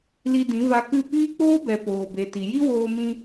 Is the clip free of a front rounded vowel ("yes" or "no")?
yes